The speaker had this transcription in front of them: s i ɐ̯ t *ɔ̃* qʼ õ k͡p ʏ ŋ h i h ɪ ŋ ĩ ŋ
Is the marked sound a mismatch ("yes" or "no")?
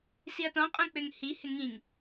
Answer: no